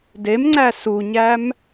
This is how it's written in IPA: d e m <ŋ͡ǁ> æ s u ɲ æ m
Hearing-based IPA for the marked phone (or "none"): ŋ͡ǀ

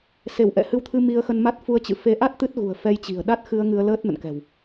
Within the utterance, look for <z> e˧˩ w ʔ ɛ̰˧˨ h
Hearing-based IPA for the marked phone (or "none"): s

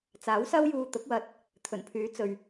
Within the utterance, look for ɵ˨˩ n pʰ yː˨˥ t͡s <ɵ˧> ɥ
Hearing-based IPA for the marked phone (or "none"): ɵ˨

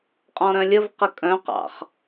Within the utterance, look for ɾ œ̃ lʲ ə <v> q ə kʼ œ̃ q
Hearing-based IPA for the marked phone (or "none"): v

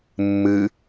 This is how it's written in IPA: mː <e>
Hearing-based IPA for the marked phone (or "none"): ɨ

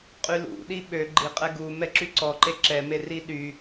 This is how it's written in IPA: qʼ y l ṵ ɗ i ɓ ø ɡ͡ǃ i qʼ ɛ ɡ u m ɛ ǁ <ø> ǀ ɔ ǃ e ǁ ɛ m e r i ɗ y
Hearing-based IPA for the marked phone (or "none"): y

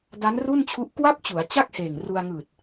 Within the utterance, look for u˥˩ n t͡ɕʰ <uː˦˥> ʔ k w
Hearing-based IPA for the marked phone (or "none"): u˦˥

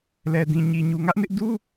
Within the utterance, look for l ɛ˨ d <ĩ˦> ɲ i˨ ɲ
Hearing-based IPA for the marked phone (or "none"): ĩ˨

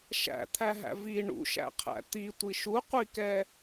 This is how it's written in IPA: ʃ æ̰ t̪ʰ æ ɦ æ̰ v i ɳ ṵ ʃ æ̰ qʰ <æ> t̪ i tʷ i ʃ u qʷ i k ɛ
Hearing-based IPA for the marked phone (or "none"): æ̰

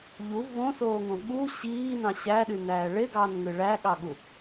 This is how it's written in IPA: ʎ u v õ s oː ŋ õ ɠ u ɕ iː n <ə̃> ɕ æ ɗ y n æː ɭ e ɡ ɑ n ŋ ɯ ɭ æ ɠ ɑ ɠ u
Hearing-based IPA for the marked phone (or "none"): ɑ̃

